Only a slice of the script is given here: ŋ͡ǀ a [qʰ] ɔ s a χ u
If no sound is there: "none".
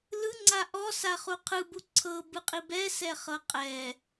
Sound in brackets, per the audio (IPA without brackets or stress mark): ʔ